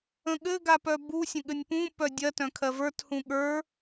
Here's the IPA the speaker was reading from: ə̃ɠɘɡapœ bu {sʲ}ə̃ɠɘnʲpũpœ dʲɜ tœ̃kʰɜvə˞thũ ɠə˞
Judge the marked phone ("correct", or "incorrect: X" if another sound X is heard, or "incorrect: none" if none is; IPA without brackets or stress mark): correct